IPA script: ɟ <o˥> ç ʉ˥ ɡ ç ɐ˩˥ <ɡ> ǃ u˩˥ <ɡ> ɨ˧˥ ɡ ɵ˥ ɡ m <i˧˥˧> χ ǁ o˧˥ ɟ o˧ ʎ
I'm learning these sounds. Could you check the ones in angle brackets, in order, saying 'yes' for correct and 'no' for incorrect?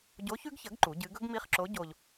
no, yes, no, yes

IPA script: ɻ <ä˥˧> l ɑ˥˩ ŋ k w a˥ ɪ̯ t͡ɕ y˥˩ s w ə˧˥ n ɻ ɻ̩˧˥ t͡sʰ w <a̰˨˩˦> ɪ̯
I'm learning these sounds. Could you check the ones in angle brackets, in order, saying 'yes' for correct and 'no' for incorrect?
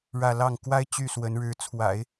yes, yes

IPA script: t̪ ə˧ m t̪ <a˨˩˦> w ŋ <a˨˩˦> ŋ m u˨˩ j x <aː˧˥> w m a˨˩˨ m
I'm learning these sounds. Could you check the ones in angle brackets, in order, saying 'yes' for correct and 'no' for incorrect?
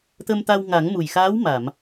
no, yes, yes

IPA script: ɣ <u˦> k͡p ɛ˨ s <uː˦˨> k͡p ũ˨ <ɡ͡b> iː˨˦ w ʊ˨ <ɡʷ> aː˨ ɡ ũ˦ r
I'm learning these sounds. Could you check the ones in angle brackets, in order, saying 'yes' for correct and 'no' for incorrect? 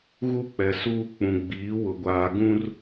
yes, no, yes, yes

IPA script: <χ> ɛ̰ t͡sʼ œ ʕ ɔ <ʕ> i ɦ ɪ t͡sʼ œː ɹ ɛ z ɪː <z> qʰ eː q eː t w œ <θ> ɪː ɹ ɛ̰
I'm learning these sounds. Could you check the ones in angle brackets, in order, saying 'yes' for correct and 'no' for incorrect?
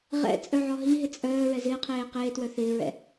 no, no, no, yes

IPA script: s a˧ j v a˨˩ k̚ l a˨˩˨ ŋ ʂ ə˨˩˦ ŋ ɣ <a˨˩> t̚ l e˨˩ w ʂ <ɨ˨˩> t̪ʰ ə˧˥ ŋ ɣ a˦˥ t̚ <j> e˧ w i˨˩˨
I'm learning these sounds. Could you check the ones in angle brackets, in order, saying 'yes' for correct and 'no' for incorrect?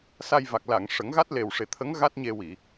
no, no, no

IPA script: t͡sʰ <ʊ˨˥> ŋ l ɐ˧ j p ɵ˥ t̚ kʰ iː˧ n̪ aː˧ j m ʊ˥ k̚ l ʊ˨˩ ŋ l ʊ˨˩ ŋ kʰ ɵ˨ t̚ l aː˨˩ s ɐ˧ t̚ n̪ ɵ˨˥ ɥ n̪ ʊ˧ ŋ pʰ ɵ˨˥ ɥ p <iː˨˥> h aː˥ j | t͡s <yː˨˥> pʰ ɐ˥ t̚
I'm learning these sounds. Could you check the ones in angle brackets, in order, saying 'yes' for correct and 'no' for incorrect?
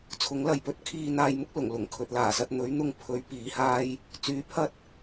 yes, yes, yes

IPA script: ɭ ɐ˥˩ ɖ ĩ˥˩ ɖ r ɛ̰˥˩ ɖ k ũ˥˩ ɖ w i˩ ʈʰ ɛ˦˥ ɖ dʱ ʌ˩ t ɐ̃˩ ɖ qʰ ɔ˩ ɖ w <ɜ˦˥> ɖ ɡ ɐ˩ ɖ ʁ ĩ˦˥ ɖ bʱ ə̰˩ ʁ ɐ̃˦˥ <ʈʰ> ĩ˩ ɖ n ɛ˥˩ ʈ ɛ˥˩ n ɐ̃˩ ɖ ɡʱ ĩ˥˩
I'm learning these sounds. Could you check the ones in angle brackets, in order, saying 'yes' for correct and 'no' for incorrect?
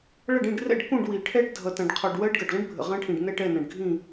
yes, yes

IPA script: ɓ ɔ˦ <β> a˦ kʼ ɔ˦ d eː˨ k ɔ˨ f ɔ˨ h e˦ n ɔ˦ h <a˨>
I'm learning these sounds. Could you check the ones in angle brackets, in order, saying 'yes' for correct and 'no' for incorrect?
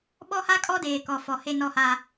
no, no

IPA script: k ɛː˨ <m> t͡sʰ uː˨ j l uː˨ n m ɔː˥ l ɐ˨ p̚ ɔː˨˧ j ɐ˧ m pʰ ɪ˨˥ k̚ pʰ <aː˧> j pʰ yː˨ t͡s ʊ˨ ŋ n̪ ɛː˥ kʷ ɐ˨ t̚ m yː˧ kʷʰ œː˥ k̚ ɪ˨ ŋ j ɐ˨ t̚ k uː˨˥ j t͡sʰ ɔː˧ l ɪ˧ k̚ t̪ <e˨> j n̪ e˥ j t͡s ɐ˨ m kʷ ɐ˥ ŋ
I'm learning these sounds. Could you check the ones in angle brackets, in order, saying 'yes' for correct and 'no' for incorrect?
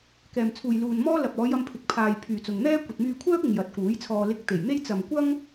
yes, no, no

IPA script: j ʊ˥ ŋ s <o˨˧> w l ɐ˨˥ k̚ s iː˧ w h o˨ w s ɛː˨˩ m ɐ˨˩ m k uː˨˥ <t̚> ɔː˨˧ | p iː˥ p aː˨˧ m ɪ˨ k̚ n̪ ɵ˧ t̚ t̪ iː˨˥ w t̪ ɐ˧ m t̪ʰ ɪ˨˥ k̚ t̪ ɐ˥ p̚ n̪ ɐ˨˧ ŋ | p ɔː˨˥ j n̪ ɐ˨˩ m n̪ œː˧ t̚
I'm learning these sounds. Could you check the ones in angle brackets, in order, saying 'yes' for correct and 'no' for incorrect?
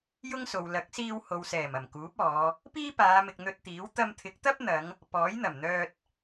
no, no

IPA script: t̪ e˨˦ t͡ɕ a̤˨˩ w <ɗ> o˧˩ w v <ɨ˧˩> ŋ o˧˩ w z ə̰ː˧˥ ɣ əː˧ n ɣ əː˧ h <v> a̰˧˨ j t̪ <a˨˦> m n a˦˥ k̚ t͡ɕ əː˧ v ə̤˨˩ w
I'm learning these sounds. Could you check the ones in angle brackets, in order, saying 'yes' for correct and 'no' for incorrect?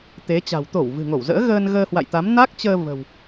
no, no, no, yes

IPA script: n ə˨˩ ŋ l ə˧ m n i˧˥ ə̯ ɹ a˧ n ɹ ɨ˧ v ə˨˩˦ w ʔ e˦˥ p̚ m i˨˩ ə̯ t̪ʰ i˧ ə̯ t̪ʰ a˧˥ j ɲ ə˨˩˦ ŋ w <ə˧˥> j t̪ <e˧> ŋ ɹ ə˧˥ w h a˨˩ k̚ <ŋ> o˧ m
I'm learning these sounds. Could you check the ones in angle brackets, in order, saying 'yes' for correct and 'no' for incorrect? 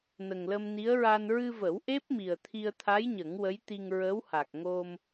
yes, no, yes

